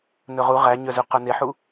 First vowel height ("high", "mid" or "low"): mid